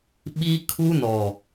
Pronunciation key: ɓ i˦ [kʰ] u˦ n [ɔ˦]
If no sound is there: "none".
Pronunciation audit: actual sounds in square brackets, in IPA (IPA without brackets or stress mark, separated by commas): kʰ, ɔ˨